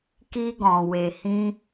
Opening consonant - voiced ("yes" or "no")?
no